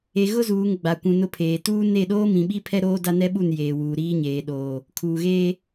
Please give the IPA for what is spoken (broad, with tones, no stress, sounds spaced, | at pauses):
e˨ ɣ ʊ˦ z uː˨ ŋ ɡ͡b a˨ kʷ ũ˨ n ʊ˦˨ pʰ eː˨ t uː˦ n e˦˨ ɗ oː˦ m ĩ˨ ɓ i˦ pʰ ɛ˦ ɾ oː˦ d a˦ n ɛ˦ ɓ u˦˨ n j eː˨ w uː˨ ɾ iː˦ ɲ eː˨ ɗ oː˨ | kʰ uː˨ ɣ eː˦